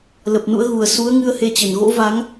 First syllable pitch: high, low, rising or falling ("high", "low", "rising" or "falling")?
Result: low